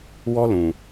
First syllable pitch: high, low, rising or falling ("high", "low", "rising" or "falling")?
high